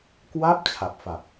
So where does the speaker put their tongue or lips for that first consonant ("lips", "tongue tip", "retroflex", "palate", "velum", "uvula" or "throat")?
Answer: velum